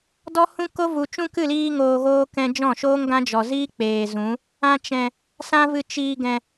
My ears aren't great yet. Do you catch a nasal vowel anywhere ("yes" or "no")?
yes